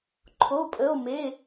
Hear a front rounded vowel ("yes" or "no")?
no